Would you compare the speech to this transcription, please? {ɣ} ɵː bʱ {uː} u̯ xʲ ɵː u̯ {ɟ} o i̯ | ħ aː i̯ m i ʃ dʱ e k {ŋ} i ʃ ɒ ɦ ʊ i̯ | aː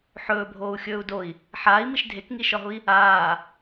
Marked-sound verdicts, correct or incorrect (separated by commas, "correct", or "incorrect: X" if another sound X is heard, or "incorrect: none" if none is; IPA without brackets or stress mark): incorrect: ħ, incorrect: oː, incorrect: d, correct